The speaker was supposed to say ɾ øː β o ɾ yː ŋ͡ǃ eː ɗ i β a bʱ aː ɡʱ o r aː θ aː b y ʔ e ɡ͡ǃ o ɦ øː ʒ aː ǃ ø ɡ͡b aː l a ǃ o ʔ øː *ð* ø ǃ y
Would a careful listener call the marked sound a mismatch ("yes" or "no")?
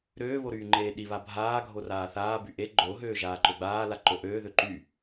no